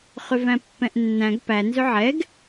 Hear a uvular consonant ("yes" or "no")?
yes